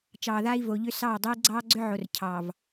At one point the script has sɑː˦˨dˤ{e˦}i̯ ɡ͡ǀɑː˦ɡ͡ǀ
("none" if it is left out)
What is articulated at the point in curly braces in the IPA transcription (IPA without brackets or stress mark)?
e˦